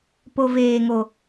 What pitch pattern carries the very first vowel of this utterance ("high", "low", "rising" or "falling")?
high